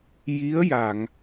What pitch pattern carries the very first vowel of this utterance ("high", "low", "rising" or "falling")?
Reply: rising